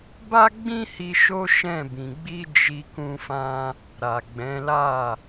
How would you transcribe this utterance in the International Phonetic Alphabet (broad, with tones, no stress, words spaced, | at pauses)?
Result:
ba˦ɡ͡bĩ˦hi˧ ʃo˦ʃɛ̃˦˨bĩ˨ ɡ͡bi˧ d͡ʒi˧ kũ˦fã˦ | ɾa˨ɡ͡bɛ̃˨˦la˦˨